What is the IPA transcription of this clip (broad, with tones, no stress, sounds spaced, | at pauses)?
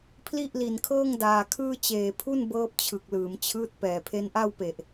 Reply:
pʰ l i˥˩ ʔ l i˨˩ n kʰ ɤː˥˩ ŋ d aː˨˩ kʰ ɯː˥˩ t͡ɕ eː˨˩ pʰ u˥˩ n b ɤː˦˥ p̚ t͡ɕʰ ɯ˨˩ k̚ l ɯː˩˦ m t͡ɕʰ ɯː˦˥ t̚ p ɛː˨˩ pʰ e˦˥ n ʔ a˥˩ w p e˨˩ ʔ